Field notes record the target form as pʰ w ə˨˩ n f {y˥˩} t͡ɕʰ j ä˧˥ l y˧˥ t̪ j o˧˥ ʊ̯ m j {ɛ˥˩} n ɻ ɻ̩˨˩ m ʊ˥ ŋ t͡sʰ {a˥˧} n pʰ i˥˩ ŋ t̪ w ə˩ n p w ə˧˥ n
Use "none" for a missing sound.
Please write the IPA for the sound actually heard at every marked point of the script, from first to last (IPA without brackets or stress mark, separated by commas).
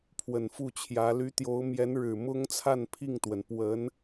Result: u˥˩, ɛ˧˥, a˥˧